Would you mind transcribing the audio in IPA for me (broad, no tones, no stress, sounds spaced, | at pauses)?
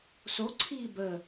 s o ǀʰ iː b ə